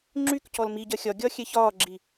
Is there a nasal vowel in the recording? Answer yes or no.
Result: no